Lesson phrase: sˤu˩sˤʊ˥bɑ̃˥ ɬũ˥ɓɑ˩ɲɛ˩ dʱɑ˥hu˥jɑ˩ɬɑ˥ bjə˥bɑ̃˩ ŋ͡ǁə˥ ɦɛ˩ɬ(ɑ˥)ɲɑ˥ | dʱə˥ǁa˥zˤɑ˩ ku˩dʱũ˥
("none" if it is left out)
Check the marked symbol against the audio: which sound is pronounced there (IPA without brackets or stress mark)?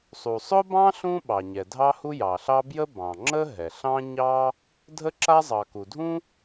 ɑ̃˥